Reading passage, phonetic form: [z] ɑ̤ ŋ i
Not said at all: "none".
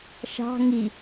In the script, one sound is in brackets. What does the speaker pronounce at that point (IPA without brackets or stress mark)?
ʃ